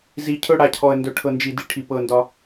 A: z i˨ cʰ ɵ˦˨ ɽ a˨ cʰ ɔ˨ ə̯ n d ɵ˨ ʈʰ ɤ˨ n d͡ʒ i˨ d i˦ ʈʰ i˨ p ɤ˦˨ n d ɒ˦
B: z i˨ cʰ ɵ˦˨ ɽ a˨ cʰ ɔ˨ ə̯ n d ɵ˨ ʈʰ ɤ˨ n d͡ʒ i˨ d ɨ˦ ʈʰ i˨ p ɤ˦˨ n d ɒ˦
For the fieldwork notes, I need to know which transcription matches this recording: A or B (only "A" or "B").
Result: A